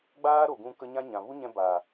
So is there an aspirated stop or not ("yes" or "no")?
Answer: no